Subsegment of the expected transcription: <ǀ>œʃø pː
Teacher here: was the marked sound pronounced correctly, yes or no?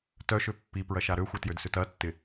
no